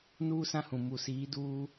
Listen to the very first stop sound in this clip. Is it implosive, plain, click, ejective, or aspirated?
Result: plain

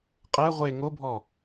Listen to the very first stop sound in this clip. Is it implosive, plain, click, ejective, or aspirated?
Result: ejective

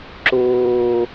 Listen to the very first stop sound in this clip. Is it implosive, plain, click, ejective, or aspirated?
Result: click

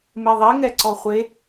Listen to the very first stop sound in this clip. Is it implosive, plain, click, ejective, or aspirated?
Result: click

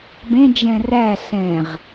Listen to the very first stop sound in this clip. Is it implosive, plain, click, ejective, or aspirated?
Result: plain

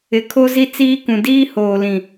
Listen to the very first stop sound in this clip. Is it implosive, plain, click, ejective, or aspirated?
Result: aspirated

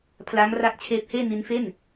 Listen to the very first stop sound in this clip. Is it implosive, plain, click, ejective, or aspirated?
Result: aspirated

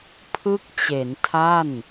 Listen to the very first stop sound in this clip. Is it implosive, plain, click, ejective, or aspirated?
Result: aspirated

